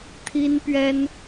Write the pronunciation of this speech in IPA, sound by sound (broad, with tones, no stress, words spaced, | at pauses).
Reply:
t̪ʰi˥npɥɛ˥n